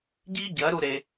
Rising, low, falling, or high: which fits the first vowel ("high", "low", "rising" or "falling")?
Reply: high